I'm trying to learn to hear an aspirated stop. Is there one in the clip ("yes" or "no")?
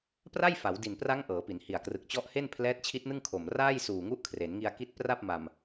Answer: yes